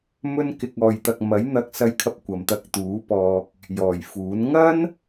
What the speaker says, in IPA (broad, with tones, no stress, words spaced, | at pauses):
mɵ˧nkɪ˨k̚ɔː˨jt̪ɐ˨k̚ mɐ˨˥jn̪ɐ˧k̚ sɐ˧jkʰɐ˧p̚ kʷɐ˨mt̪ɐ˧k̚t̪uː˨˥pɔː˧k̚ | jɔː˨˩jfuː˨˥n ŋɐ˥n